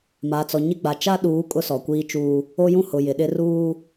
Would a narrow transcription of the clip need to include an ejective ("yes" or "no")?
yes